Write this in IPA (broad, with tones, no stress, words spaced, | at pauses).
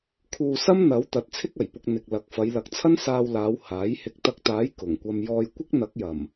kʰuː˧sɐ˥mn̪ɐ˨˥w t̪ɐ˨˥t̚t͡sʰɪ˥k̚ɐ˨˩jpʊ˧k̚ n̪ɪ˨k̚lɐ˨˥k̚ fɐ˨˧jlɐ˨˥k̚t͡sʰɐ˥n saː˧wlaː˨˧w haː˨˥j hɪ˨˥k̚t̪ɐ˧k̚t̪aː˨˥j kʊ˨˩ŋkʷɐ˧m jɔː˧jkʷɪ˥k̚n̪ɐ˨˥k̚ jɐ˨˩m